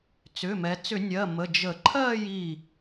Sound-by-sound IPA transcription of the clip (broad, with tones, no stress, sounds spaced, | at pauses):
t͡s ʏ˩˧˩ m ɛ˩˧ t͡s ʏ˧˩˧ nʲ ɜ˩˧˩ m ə˩˧˩ d͡ʒ ə˧˩˧ ǃʰ ɜ˥˧ j i˧˩